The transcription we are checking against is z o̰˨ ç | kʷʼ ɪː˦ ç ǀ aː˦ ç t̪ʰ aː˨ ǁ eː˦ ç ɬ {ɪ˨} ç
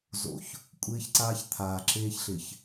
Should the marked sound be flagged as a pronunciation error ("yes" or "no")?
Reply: no